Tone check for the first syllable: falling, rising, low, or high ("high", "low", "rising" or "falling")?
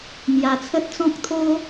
low